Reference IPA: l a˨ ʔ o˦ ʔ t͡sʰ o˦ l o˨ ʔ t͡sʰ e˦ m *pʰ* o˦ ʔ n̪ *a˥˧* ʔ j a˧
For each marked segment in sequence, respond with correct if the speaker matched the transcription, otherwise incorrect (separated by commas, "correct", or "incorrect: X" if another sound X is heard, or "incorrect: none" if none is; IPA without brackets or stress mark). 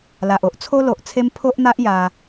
correct, incorrect: a˦